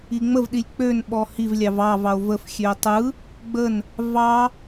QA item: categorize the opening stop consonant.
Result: implosive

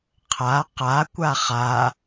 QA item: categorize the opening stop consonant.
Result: aspirated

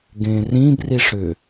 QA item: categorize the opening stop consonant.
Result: plain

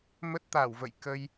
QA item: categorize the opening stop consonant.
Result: plain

